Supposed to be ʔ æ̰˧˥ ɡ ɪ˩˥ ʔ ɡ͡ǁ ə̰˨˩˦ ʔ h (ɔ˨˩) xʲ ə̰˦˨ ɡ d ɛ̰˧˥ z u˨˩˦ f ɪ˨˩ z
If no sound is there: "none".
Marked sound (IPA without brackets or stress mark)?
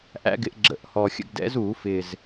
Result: ɔ˨˩